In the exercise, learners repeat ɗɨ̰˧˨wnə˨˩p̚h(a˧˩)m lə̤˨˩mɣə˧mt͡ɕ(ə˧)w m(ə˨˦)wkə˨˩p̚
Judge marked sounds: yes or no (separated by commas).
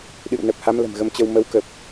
no, yes, yes